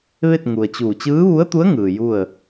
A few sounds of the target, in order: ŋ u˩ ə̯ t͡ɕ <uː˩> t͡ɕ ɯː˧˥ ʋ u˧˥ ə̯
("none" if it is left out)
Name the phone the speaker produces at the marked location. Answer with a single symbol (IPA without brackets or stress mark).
uː˧˩